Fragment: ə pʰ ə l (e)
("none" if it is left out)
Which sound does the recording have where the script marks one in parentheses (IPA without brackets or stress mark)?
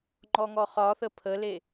e